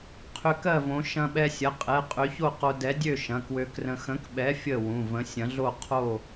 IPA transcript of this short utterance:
qʰ ʏ˧ k ɜ˥˨ v õ˨˥ ʃ ɐ̃˧ ɓ ɛ˧ sʲ ɐ˩˧˩ qʼ ɛ˩˧˩ qʼ ø˨˥ ç o˥˨ q o˧ d ɛ˨˥ dʲ ø˥˨ ʃ ɐ̃˩˧˩ k w ø˧ k r ə̃˧ x ə̃˨˥ k ɓ ɛ˨˥ fʲ ə˥˨ w ũ˩˧˩ v ə̃˨˥ sʲ ɐ̃˨˥ ɮ o˥˨ qʰ o˥˨

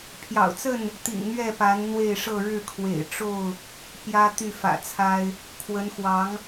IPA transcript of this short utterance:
pʰ j ɑ̰˨˩ ʊ̯ t͡s ə˥˨ n | t̪ ḭ˨˩ ŋ n̪ ɥ ɛ˥˨ p a˨˦ n n̪ w e˥˨ ɪ̯ ʂ ɤ˥˨ ɻ ɻ̩˥˨ kʰ w ḛ˨˩ ɪ̯ ʈ͡ʂ o˥˨ ʊ̯ | p j ä˦ t̪ y˥˨ f ä̰˨˩ t͡sʰ a˦ ɪ̯ | kʰ w ə˨˦ n x w ɑ˨˦ ŋ

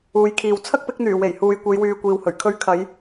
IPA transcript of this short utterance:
uː˨˧ j kʰ iː˨ w t͡sʰ ɐ˥ k̚ p ɪ˨˥ k̚ n̪ yː˨˩ w e˨˩ j h uː˨ j kʷ e˨˧ j w yː˨ kʷ iː˨ w h ɵ˨˩ ɥ kʰ ɵ˧ ɥ kʰ ɐ˨˧ j

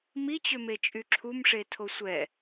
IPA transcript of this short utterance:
m i t͡ɕ ø m e t͡ʃʼ y ǁʰ u m ʂ e tʰ o sʷ ɛ

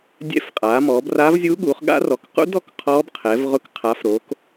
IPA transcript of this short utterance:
dʲ ɛ̰˦˥ f qʼ aː˨˦ m ɔː˨˦ b r aː˦˥ v zʲ uː˦˥ ɠ uː˨˦ χ ɠ a̰˦˥ r ɔ˨˦ k q ṵ˦˥ d ɔ˨˦ k qʰ ɔː˦˥ b qʰ ɛ˨˦ v ʁ ʊ˦˥ k qʰ a˨˦ f ɾ oː˨˦ k

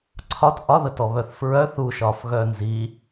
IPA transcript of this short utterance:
ǀʰ ɒ t ʔ ɒ ð ə t ɔ β œ θ f ɹ œ θ u ʃ ɒ f ɣ œ n z i

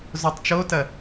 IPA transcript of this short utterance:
z o tˤ t͡ʃ o t ɐ

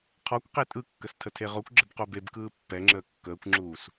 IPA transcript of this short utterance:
qʰ ɔ kʷ q e tʼ ɯ kː ə s tʰ ə tʰ e ʁ o kʷ ɡ͡ǁ ə b q o b e b k ɯː pː ɛ ŋ͡ǁ əː kː əː kʷ ŋ͡ǁ uː s

